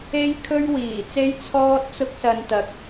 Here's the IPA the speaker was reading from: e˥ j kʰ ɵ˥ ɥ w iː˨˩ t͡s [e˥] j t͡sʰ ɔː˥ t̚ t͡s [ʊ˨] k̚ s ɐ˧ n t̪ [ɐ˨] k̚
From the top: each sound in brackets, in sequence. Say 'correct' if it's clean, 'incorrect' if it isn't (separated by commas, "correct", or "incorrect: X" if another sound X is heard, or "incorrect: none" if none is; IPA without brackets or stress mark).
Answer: correct, incorrect: ʊ˥, correct